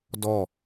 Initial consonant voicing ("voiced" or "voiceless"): voiced